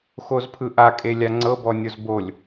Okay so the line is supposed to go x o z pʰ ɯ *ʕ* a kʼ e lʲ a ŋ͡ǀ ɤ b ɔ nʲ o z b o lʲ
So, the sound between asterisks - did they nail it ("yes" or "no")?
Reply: no